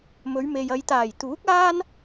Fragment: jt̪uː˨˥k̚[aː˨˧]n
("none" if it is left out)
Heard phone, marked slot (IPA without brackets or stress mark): aː˥